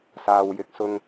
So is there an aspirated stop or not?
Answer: no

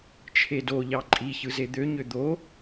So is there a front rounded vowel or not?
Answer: yes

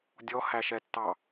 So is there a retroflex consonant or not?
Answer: no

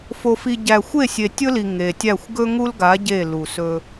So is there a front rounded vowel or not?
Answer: no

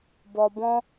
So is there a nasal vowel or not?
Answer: yes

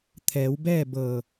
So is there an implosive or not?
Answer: no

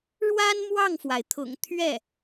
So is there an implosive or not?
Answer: no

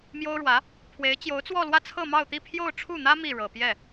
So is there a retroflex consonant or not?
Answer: yes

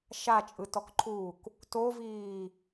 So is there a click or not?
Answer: yes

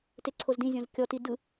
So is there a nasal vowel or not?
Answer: yes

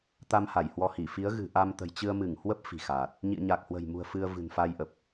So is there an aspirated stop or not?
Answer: no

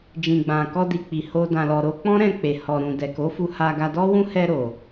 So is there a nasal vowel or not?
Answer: yes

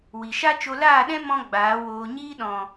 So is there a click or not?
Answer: no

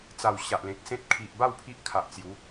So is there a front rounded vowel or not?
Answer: no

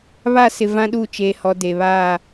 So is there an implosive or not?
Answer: yes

